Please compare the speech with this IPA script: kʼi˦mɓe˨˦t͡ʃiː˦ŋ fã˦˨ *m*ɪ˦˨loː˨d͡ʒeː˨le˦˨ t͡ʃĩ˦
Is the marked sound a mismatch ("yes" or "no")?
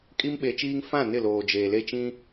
yes